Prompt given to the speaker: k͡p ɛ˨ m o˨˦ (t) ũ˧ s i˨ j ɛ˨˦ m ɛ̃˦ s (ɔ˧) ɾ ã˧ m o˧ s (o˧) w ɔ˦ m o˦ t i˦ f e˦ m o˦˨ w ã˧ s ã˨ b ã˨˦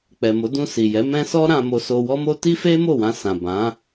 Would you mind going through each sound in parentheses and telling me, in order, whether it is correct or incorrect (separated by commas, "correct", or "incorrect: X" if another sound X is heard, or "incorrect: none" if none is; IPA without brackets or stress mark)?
incorrect: d, incorrect: ɔ˦, correct